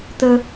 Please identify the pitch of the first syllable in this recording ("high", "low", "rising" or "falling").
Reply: high